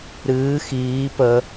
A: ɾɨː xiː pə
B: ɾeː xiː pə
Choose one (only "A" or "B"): A